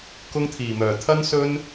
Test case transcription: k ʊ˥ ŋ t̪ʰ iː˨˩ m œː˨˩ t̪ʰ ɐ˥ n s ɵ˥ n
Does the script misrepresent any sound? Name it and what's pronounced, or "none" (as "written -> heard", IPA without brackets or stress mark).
none